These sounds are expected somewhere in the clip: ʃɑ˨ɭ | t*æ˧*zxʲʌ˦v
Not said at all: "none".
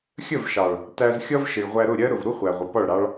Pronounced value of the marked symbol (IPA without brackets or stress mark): æ˧